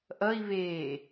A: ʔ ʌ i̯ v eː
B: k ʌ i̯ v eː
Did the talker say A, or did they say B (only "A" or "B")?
A